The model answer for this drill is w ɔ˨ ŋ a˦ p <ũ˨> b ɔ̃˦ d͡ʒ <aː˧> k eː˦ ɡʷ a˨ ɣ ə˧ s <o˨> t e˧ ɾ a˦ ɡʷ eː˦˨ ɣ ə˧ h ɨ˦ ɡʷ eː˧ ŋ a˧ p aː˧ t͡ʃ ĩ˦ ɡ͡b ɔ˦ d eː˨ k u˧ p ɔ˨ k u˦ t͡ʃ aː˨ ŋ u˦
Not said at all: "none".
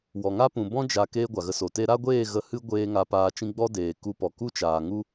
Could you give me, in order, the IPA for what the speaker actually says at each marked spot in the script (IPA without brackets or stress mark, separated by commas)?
ũ˨, a˧, o˨